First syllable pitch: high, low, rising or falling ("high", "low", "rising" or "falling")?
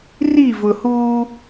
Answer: falling